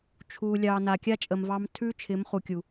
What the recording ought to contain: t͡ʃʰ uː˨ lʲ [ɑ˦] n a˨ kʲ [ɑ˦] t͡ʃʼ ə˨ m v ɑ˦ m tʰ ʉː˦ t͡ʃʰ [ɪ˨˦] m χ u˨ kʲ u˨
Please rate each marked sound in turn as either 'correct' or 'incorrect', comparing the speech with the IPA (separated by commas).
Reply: incorrect, incorrect, correct